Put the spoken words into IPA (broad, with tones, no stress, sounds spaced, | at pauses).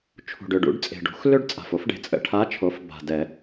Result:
t͡ʃʰ ṳ˨˩ ɖ ʏ˨˩ ɖ ṵ˩˥ ɖ t͡sʼ e̤˨˩ ɖ ṳ˩˥ x l ø˥ ɖ t͡sʼ a̤˨˩ f o˧˥ f ɖ e̤˩˥ t͡sʼ ə̰˨˩ ʈʰ a˧˥ t͡ʃʰ o˩˥ f b a̤˨˩ d ɛ˨˩˦